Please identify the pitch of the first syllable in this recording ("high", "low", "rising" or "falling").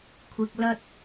low